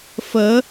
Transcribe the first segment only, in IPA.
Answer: f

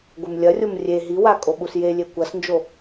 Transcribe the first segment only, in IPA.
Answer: ɡʷ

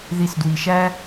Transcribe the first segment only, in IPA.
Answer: ð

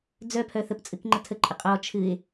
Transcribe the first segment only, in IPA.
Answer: d͡z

